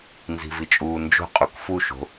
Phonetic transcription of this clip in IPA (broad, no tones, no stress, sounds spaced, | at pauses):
n z i̤ v i t͡ʃʼ uː n d͡ʒ o̤ qʼ u k f u ʃ o̤